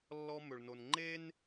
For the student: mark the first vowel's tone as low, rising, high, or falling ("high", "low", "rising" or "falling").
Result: high